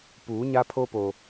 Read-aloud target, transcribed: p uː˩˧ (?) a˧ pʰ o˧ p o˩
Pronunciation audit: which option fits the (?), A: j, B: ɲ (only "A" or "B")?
B